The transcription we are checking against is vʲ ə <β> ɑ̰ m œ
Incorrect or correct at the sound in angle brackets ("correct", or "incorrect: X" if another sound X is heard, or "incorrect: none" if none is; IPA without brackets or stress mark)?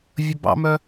incorrect: b